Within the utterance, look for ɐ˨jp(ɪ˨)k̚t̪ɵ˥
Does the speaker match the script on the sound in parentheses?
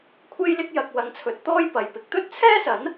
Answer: no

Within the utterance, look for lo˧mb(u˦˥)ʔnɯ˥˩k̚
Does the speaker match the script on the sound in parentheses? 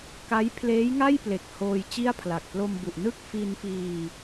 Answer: no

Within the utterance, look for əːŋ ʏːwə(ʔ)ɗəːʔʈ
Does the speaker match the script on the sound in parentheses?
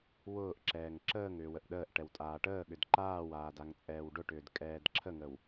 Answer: yes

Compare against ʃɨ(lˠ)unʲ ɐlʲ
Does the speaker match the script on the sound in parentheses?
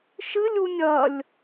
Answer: no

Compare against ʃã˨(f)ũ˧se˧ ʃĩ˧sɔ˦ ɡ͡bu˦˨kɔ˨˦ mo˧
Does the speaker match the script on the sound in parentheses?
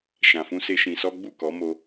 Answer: yes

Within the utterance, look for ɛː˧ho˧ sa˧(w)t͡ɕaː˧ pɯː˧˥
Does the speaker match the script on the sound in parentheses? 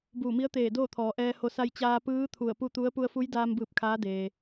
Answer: no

